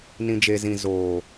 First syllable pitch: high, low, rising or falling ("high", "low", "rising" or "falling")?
low